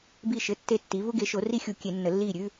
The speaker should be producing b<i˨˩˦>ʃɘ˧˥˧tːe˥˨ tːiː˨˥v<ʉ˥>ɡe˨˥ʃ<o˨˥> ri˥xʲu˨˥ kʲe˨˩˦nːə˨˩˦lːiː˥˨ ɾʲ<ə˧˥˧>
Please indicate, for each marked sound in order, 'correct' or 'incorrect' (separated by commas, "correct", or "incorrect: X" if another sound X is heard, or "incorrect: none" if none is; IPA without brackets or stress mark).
incorrect: i˥˨, incorrect: u˥, correct, incorrect: ʉ˧˥˧